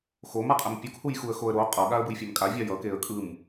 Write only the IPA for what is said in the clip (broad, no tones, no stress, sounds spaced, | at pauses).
x o m a qʼ ɛ m pʲ o k h u j x u ə̯ x o ə̯ ɾ o qʼ ʌ ɠ a ə̯ b ɯ j fʲ a m kʼ a vʲ a j ʌ k e ə̯ kʼ ɯ m